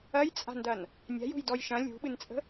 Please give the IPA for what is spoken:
ɐ j t͡sʼ a̤ n d ɐ n | nʲ a̤ j ṳ j d ɔ j ʃ ɐ̃ lʲ ṳ ɓ ɨ n t͡sʼ ə̤

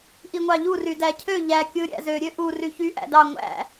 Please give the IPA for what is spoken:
ʔ i ŋʷ ɑ ʎ u r y d æ cʰ ø ʎ æ kʲ ɯ ɾʲ æ̰ z ø ɾʲ ø ʔ u r y ç y ʔ æ̰ d ɑ ŋʷ æ̰

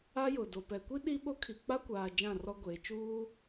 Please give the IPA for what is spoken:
a˦ j ʊ˨ d o˨ p ɛ˨ kʷ i˦ ɗ i˦ ɓ o˦ kʰ i˨ k͡p a˦ kʷ aː˨ d͡ʒ ã˦˨ r ɔ˦ ɡʷ eː˨ t͡ʃ uː˦

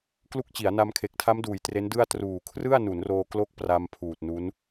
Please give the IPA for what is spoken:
k l u˦˥ k̚ t͡ɕ i˩˦ a̯ n a˧ m kʰ e˨˩ k̚ tʰ a˦˥ m d uː˩˦ j t r e˦˥ n d ɯ˥˩ a̯ t r uː˨˩ kʰ r ɯ˥˩ a̯ n u˩˦ n r oː˧ k l o˦˥ k̚ p r a˧ m pʰ uː˨˩ t̚ n u˦˥ n

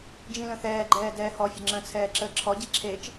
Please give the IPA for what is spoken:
d͡ʒ ĩ l ə̃ θ ɛː ɡ͡ǃ ɛː d ɛː h ɔ fʲ ə ŋ͡ǁ ə̃ t͡sʰ ɛː ǁ əː ǁʰ ɔ ɟ i ǁʰ e t͡ʃ

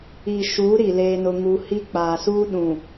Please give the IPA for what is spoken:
i˨ ʃ uː˨˦ ɾ i˨ l eː˦ n ʊ˦ ŋ u˦ h i˦ k͡p aː˨ s uː˦ ɗ ũ˨

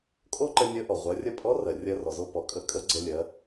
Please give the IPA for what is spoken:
kʼ o˥ ǃ ə˧ nʲ ə˧˥ ʔ ɔ˩ ʁʷ ɜ˩˧ rʲ ə˧ pʼ ɔ˧˥ r ɜ˩ rʲ ɜ˧ r ɔ˩ z o˧ p ɔ˩˧ kʼ ə˧˥ kʼ ə˧˥ ɡ͡ǀ ə˧ lʲ ɜ˩˧

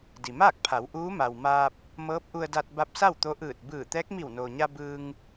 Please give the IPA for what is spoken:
d i˩ m aː˥˨ k̚ pʰ a˩˧ w ʔ uː˧˥ m a˩ w m aː˧ p̚ | m ɤː˧˥ p̚ ʔ u˧ ə̯ d a˧ t̚ b a˧˥ p̚ s a˥˨ w t̪ o˧˥ ʔ ɯː˧˩ t̚ b ɯː˧˩ t̪ ɛː˧˥ k̚ m i˧˩ w n oː˩ ɲ a˧ b ɯː˧ ŋ

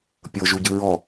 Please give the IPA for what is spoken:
pʲ ɤ ʒ u ɟ ɯ ɹ ɔ

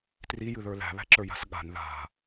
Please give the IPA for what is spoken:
t r i j ɨ ð ə˞ l æ̤ β æ̤ ǁ ə˞ j a̤ s ɠ a̤ n ð a̤

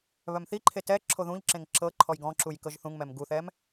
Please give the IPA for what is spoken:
β œ m θ i ǃʰ e t ɛ ǁʰ o ð ũ ʎ ǁ ẽ ŋ ǁ ɤ ǃʰ ɔ j ɡ ɔ̃ ǁ u j k ɤ ʒ θ ũ ŋ m ɛ m ɡ u θ ɛ m

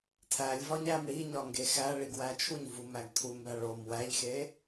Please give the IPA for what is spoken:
tʰ æ lʲ v ɒ ɲ æ m ɽ i ɲ ɒ ŋ ɡ e x æ ɭ i ɡ w æ t͡ʃʰ u ɲ v u m æ ɡ tʰ u m b æ ɭ o m w æ ʎ x e

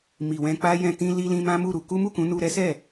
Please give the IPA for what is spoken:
m i˨ w ɛ̃˧ k͡p a˦ j ɛ̃˧ t ĩ˧ l i˧ l ĩ˧ m ã˦ m u˦˨ ɾ u˧ k u˦ m u˦˨ k ũ˨˦ n u˧ ɾ ɛ˦ s ɛ˦˨

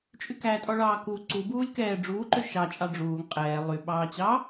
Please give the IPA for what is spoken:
t͡ʃʼ y k æ tʼ ɔ ɭ ɑː k u ǀ u b uː lʲ k ɛː ɖ͡ʐ uː ǃ ø ʃ ɑ t͡ʃʼ ɑ ɖ͡ʐ uː ŋ qʼ ɛː lˠ y ɓ ɑː t͡ɕ ɑ

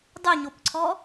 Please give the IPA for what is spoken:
dˤ ʉ ɲ o p ǀʰ ɔ

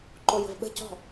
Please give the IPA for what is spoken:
ǃ o j ə̤ v ɓ ə̤ c ɔ̤

